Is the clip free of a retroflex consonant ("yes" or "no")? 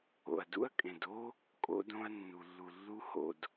yes